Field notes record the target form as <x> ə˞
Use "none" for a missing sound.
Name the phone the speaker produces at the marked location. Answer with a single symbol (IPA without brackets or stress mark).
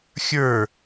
xʲ